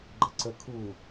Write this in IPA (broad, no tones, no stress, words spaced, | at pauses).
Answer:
ɡ͡ǃəǀə kʰu